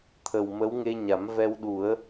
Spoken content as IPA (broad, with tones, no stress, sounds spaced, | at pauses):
t̪ʰ ə˨˩ w m ə˧˥ w ŋ e˧ ɲ a˨˩˦ m v ɛ˧ w ɗ u˨˩˦ ə̯